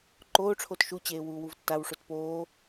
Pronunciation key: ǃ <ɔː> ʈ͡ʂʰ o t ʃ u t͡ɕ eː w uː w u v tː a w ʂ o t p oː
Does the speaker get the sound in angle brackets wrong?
yes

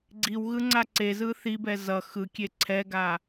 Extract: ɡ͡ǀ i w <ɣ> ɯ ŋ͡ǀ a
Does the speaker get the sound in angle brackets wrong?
no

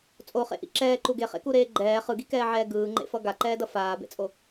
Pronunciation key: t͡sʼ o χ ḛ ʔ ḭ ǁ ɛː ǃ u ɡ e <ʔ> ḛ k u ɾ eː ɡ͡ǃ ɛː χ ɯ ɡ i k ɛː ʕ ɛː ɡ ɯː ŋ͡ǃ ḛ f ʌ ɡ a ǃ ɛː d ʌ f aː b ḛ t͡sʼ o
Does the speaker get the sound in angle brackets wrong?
yes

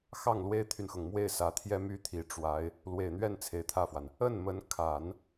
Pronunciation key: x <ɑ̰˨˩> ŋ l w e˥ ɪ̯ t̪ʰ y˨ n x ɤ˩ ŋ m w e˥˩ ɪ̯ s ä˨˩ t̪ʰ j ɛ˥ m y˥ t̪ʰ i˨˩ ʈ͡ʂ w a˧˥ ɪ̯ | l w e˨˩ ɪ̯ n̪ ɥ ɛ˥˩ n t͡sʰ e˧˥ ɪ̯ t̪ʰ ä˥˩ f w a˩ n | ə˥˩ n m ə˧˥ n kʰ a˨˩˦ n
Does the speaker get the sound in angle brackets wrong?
yes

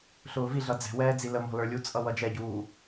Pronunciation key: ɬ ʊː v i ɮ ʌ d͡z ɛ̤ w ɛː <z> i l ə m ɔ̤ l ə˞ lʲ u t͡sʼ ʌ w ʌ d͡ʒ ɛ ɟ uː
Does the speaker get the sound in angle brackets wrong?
yes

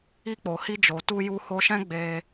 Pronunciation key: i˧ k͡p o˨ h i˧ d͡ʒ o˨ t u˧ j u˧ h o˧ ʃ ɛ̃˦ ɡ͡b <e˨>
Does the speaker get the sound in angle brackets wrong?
yes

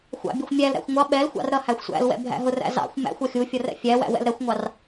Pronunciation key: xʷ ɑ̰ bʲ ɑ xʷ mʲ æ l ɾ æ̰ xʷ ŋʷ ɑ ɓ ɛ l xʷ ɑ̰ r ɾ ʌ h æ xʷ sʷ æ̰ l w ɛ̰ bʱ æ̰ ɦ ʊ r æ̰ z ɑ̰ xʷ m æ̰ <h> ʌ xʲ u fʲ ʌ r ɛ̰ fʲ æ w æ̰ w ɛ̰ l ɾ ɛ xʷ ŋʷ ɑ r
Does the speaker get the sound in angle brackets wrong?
yes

